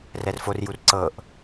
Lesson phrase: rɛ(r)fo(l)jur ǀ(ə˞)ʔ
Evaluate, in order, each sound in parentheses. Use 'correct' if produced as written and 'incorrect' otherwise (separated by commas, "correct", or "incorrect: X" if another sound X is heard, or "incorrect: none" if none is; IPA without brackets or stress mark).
correct, incorrect: r, incorrect: ɤ